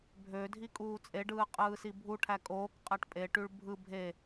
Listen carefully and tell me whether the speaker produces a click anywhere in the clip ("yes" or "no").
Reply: no